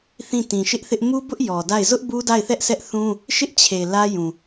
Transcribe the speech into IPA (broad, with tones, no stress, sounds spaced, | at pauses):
θ ĩ˦˨ t ĩ˨ ʃ ɪ˦ ʔ θ ɪ˦ ʔ m u˦ b ʊ˦ ʔ j ɔ˨ d a˦˨ ɪ̯ z ʊ˦ ʔ b u˦ d a˦˨ ɪ̯ θ ɛ˦ ʔ s ɛ˦ ʔ θ ũ˦ | ʃ ɪ˦ ʔ t͡ɕʰ e˨ l ä˦ j ũ˨